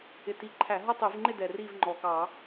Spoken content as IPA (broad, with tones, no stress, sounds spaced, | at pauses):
ɪ˨˩ t i˨˩ ǃʰ æ˧˩˧ ɦ ʌ˥˧ tˤ i˧˩˧ v ŋ͡ǃ ɪ˥˧ d ɛ˨˩ r iː˥˧ v ŋ͡ǃ ɔː˨˩ k ɑː˧˩˧